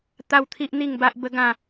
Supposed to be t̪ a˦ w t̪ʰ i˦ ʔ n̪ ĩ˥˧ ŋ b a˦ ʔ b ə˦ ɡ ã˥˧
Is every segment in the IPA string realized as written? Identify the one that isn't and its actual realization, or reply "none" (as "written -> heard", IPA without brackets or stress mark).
ĩ˥˧ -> i˥˧